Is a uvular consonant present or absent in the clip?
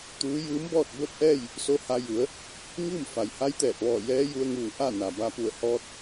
absent